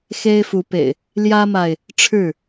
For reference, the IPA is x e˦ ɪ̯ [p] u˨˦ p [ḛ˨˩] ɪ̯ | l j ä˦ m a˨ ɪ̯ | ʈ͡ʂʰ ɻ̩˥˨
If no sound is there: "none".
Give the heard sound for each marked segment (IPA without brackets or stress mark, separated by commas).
f, ḛ˨˩